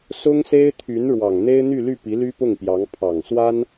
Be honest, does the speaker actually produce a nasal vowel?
no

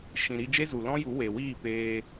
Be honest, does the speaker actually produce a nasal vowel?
yes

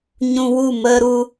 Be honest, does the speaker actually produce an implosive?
no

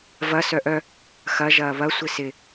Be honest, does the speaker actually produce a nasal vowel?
no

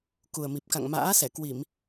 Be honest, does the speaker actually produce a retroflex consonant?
no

